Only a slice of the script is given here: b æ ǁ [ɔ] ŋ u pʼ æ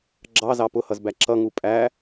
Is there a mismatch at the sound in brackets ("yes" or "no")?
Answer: yes